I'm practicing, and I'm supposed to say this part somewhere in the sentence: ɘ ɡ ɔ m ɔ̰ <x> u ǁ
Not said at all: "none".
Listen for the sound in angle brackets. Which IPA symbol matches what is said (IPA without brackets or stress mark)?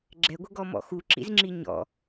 x